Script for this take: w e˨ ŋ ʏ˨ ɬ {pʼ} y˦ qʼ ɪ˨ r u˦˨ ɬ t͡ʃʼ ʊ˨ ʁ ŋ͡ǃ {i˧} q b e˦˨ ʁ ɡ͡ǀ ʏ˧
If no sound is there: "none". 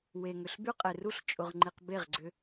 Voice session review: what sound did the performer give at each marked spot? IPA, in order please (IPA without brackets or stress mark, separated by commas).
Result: b, i˨